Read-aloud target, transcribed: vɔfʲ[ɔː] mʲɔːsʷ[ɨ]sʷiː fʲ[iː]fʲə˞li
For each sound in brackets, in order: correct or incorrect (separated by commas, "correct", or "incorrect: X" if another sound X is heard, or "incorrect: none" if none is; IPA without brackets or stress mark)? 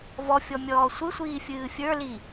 incorrect: ɔ, correct, incorrect: ɨː